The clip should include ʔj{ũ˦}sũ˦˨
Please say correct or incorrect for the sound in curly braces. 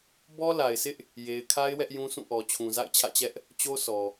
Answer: correct